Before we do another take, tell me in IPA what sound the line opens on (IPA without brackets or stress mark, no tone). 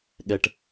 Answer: ɠ